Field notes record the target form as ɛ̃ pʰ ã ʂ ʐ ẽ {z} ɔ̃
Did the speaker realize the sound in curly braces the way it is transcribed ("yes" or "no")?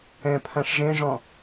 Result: no